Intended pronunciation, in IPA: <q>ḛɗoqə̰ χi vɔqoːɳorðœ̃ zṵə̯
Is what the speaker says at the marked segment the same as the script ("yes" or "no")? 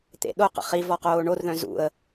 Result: no